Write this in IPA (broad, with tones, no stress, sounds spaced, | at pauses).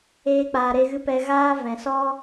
eː˦ k͡p aː˧ ɾ e˦ ɣ ɨ˦ p ɛ˧ ɣ aː˦ v ɛ̃˨ s ɔ˦